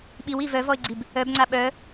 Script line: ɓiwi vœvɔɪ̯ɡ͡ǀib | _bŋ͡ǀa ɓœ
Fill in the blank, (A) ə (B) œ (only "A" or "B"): B